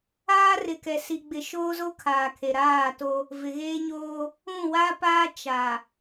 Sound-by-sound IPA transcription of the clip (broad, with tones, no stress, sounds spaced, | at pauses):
aː˦ r ɪ˨ k ɛ˨ s i˨ ɡ͡b ɪ˨ ʃ oː˦ z o˦ kʰ aː˨ kʰ e˨ ɾ aː˦˨ t o˦ | v ɪ˨ ɣ eː˦ ɲ oː˦ | ũ˦˨ w a˦ p aː˦ t͡ʃ a˨